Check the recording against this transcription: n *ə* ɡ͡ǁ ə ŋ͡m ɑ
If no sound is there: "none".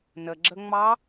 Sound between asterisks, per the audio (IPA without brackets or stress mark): ə